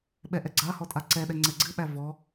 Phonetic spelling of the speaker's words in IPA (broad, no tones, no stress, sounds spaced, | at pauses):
ɓ ɛ ʔ ɛ ɡ͡ǀ a h ɔ tʼ a ǀ ɛ ɗ ɛ ŋ͡ǀ ɛ ɡ͡ǀ ɨ ɓ æ v ɔ